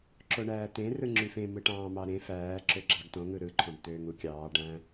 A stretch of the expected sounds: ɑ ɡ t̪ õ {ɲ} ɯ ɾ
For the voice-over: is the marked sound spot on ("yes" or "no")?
no